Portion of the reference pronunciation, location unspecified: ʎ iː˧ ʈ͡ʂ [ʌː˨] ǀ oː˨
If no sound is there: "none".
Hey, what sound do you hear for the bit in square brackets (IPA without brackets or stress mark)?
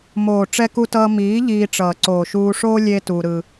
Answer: ʌː˨